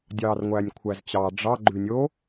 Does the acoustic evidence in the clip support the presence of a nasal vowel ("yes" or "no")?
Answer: no